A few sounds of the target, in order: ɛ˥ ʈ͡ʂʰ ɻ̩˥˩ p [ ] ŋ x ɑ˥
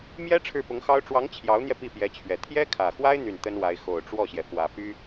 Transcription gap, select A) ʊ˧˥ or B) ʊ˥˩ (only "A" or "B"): A